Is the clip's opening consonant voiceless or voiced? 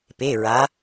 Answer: voiceless